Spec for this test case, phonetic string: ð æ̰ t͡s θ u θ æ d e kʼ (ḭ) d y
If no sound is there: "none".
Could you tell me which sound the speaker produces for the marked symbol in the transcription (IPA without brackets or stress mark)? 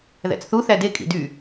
ḭ